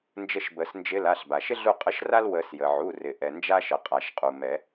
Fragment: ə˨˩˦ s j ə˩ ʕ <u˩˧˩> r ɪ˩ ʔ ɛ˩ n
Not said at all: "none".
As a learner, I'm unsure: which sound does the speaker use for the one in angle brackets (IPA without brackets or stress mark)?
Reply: u˩˧˩